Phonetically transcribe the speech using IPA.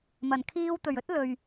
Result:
m ɐ˨˩ n kʰ iː˧ w t̪ ɵ˨˩ ɥ ɵ˥ t̚ l ɵ˨ ɥ

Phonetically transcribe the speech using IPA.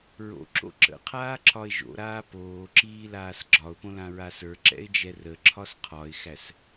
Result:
ɹ o̰ ǁ o̰ ǁ ə̰ qʰ aː ǁʰ ɒ ɪ̯ ʒ o̰ ɾ aː p oː ǁ iː l aː s ɡ͡ǁ ɒ ʊ̯ p õ l ã ɹ a s ə˞ ǁ ɛ̰ ɪ̯ d͡ʒ ɛ r ə ǁʰ ɒ s qʰ ɒ ɪ̯ x æ s

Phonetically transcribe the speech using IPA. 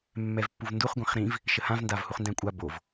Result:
mː ɛ v pː u v n d u χ ɡʷ ɛ̃ χ ɾ ĩ v | ʃ ə h ã v n d a v h u χ n d æ̃ kʷʼ a b o v

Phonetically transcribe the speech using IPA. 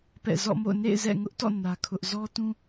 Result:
p ɛ̰˦˨ z ɔ̰˦˨ m o̰˦˨ ʊ̯ n ḛ˦˨ ɪ̯ z ɛ̰˦˨ ŋ ʊ˦ ʔ t ɔ̰˦˨ n ä˦ kʰ ʊ˦ ʔ z ɔ˦ t ũ˦

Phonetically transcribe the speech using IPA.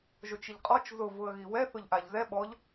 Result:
ʒ o t͡ʃ i ʎ qʼ ɔ t͡ʃ z ʊ v ʊ ə̯ ɣ i w ɛ θ ʊ ʎ ʔ a ʎ z ɛ ɓ ɔ ʎ

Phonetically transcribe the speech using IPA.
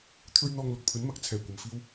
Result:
t̪ʰ ɵ˥ ɥ n̪ ɔː˧ ŋ l ʊ˨ k̚ pʰ ɵ˨˥ n m ɐ˨ k̚ t͡sʰ ɛː˨˩ kʷ ɐ˨˩ m f iː˧ w

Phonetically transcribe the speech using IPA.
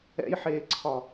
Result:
ɛ̰ j ħ eː ǀʰ ɒ

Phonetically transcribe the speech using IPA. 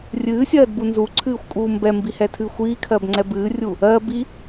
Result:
rʲ ɨː sʲ ɜː d b u n z u ǀʰ ɨː xʷ kʼ uː m b ɛ m b i h ɛ tʰ ɨː xʷ iː kʰ ɜ b ŋ͡ǀ ɛ b ɨː rʲ u | ɜ b i

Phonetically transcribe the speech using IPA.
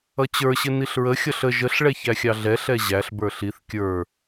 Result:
ʌ t͡ɕ ə˞ ɕ ɪ n i ɬ ɹ ə xʲ ʌ ɬ ə ʒ ə ɬ ɭ ɛ ç æ xʲ ɑ ɮ ɛ ɬ ɛ ʑ æ ɬ b ə˞ ɬ i θ kʲ ə˞

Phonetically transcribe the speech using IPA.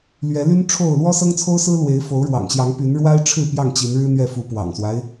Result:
l ɥ ɛ˨˦ l y˦ n ʈ͡ʂʰ o˥˨ ʊ̯ l w ɔ˦ s ɤ˦ ŋ t͡sʰ o˦ ʊ̯ s ɹ̩˦ l w e˨˦ ɪ̯ f o˨˦ ʊ̯ ɻ w ɑ̰˨˩ ŋ ɕ j ɑ˨˦ ŋ p y˨˦ n ɻ w a˦ ɪ̯ ʈ͡ʂʰ ɻ̩˥˨ p j ɑ˥˨ ŋ t͡ɕ i˨˦ n ɻ ɻ̩˦ n̪ ɥ ɛ˥˨ f u˨˦ p w ɑ̰˨˩ ŋ s w a˦ ɪ̯

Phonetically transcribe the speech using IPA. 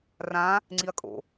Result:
r ã | ŋ͡ǀ i ɐ̯ kʼ o̰

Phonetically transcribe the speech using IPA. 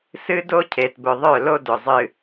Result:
s ɨ˦ d o˦ cʰ e˨ t b ʊ˨ ðˤ œ˦˨ l o˦ d ʊ˨ zˤ ɨ˨

